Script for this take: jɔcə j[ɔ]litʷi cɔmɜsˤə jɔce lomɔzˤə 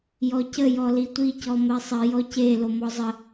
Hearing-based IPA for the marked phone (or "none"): ɔ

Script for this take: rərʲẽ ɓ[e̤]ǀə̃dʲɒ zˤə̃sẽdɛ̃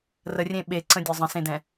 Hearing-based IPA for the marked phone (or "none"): e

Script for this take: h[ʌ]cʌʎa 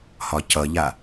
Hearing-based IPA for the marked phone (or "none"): ɒ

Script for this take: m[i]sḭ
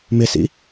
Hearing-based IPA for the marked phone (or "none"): ɪ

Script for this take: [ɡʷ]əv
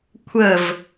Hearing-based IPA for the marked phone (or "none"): kʷʰ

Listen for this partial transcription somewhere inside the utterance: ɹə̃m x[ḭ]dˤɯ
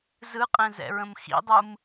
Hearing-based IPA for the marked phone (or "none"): ḭ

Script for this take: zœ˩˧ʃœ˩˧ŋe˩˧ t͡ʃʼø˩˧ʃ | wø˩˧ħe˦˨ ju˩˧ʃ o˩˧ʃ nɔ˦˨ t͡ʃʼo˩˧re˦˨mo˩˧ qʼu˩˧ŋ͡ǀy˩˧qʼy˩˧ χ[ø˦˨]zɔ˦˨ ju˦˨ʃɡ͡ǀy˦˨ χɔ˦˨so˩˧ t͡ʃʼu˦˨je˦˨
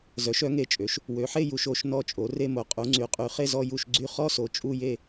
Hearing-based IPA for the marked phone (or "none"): e˦˨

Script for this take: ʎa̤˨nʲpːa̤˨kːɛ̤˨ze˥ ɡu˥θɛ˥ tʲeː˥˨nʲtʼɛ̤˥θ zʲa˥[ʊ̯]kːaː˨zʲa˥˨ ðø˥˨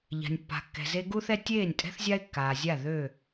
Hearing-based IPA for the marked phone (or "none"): ɪ̯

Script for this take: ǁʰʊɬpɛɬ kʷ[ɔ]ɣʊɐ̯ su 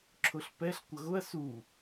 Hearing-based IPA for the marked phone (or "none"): ʌ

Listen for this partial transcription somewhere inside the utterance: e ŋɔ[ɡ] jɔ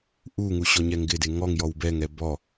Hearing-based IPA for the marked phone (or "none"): ŋ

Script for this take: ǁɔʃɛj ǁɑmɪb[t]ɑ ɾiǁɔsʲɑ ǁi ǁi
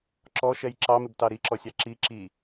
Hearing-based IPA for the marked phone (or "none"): t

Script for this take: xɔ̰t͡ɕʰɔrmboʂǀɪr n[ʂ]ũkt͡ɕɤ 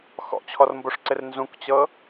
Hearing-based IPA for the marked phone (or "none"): z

